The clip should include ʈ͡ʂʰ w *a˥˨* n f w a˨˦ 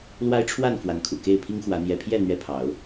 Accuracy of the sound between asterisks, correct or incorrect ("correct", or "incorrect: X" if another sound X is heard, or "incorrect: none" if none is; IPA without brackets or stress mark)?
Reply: correct